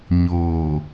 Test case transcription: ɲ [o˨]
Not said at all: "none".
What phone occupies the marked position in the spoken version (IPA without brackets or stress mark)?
oː˨